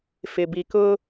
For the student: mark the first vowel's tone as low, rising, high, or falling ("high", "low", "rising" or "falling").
low